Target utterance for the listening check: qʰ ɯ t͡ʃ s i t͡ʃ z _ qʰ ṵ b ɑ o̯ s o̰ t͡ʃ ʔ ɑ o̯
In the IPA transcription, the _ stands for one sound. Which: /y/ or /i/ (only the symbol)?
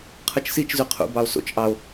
y